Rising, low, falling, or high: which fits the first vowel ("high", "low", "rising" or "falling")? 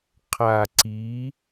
low